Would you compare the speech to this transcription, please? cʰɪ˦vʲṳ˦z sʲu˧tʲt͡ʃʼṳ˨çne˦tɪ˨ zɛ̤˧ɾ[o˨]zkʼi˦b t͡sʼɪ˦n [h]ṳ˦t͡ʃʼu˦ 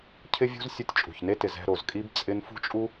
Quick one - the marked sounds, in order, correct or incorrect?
correct, incorrect

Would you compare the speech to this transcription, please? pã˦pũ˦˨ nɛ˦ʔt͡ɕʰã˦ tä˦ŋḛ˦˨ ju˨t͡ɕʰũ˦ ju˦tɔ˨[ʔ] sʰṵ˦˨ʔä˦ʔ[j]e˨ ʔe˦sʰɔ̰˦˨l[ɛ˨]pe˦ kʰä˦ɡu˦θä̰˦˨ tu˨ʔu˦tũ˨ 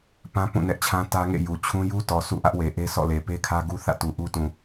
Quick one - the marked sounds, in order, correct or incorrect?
incorrect, incorrect, incorrect

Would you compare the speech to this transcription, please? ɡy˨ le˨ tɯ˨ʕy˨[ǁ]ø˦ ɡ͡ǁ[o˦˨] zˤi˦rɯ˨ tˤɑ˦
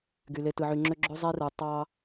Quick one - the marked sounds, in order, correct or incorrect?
incorrect, incorrect

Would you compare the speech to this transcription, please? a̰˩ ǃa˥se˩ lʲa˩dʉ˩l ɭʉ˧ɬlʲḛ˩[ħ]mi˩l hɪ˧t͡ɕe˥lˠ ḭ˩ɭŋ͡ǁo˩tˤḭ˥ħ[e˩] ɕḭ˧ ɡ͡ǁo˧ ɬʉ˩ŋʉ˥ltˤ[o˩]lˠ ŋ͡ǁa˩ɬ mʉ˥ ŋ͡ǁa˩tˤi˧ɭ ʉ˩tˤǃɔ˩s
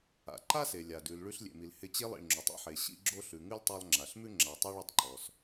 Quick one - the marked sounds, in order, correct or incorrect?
incorrect, correct, incorrect

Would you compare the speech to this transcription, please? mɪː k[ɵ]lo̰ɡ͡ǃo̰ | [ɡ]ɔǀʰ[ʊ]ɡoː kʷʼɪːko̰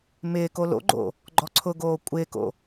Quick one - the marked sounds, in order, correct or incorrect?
incorrect, incorrect, correct

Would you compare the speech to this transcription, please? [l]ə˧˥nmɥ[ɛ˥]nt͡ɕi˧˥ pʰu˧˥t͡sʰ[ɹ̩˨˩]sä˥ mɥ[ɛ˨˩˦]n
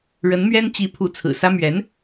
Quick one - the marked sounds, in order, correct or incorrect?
incorrect, correct, correct, incorrect

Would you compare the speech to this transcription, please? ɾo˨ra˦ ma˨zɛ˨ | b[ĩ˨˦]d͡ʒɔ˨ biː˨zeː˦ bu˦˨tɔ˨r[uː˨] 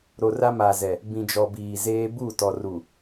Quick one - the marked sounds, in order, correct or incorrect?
incorrect, incorrect

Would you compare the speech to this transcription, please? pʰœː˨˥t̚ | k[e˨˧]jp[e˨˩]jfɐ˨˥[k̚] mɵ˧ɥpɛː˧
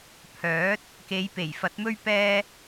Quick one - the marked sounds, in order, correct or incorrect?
correct, correct, incorrect

